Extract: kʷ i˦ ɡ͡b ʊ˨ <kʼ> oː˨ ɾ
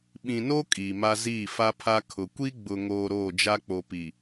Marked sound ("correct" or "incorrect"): incorrect